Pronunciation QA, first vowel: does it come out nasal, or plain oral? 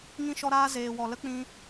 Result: nasal